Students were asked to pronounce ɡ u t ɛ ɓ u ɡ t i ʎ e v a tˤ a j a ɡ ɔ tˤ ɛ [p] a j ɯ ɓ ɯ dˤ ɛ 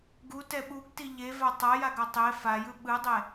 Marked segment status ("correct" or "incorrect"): incorrect